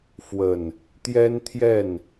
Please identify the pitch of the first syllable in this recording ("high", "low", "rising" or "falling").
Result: low